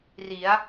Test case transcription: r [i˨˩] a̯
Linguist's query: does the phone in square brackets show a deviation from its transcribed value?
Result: yes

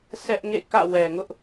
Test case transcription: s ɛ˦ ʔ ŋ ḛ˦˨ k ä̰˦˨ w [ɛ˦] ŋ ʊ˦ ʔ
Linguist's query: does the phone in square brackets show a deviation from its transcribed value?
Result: yes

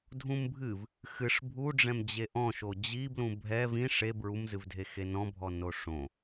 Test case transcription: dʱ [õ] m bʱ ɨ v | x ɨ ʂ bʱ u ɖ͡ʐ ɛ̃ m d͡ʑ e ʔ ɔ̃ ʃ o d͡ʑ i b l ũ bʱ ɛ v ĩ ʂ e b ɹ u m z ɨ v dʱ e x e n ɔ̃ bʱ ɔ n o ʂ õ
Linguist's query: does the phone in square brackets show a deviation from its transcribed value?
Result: yes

